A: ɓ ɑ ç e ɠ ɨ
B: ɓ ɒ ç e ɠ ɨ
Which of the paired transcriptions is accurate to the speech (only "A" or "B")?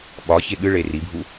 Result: B